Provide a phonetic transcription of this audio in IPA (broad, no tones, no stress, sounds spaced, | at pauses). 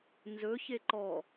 n z ɵ ç e ǃ ɔ